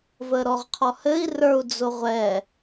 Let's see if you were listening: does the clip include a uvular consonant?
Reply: yes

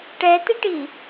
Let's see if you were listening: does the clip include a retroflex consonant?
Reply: yes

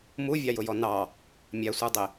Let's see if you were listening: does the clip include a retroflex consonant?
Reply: no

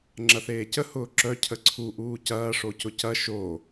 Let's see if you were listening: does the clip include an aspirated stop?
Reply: yes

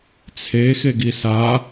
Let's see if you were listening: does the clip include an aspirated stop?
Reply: yes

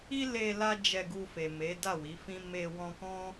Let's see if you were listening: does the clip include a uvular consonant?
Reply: no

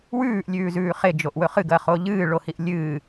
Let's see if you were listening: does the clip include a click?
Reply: no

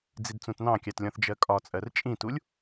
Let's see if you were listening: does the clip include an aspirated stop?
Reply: no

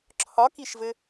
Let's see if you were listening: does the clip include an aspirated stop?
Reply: yes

